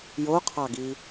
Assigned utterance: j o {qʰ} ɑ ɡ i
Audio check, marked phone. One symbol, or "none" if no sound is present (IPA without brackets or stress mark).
qʰ